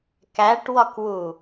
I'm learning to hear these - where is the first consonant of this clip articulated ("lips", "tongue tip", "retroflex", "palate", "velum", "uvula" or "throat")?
velum